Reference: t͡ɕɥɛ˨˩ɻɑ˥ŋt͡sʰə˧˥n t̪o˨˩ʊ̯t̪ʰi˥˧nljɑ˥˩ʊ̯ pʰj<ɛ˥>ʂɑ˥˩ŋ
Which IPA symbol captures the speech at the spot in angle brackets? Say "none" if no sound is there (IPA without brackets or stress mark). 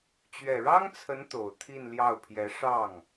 ɛ˧˥